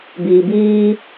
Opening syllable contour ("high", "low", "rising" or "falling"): low